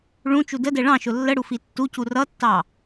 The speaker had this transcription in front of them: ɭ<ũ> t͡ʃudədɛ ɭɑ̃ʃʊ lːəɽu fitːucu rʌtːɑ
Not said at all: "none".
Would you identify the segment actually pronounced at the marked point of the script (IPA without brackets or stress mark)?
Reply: ũ